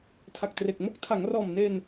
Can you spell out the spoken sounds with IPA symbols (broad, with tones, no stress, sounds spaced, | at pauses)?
tʰ a˨˩ k̚ t r e˨˩ k̚ m o˥˩ k̚ tʰ a˩˦ ŋ r ɔː˨˩ m n e˧ n